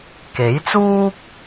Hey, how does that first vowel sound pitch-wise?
rising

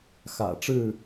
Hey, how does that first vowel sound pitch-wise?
low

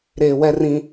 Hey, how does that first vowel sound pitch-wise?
low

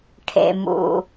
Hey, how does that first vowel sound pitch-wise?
low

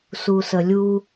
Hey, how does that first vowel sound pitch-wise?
low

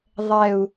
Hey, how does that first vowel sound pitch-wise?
low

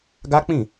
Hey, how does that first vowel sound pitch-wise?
high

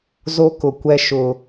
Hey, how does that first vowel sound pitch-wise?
high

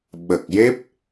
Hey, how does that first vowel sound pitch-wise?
low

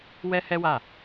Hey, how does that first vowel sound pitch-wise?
high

